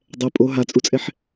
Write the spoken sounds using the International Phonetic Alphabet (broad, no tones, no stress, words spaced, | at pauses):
dˤɛ pʼo ɦat͡sʼut͡sʼɛħ